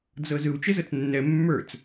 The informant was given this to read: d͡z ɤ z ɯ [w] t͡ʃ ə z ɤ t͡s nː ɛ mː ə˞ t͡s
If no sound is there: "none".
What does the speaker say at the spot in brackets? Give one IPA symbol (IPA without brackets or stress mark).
w